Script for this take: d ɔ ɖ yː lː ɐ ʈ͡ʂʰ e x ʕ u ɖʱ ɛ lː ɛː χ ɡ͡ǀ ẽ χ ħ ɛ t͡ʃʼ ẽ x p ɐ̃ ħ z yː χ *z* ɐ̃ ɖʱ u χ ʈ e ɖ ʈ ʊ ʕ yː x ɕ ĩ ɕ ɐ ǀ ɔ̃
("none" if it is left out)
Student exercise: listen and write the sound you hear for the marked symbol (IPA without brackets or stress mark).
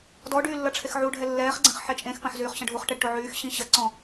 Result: ɕ